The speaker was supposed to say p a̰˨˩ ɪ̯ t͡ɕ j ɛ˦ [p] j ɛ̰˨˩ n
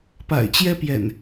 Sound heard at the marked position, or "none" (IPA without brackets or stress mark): p